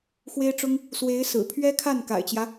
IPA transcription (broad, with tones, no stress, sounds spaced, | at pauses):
x w e˥ ɪ̯ ʈ͡ʂ ʊ˥ ŋ | s w e˧˥ ɪ̯ s ɹ̩˨˩ pʰ ɥ ɛ˥ kʰ a˥˩ n k a̰˨˩ ɪ̯ t͡ɕ j ä˦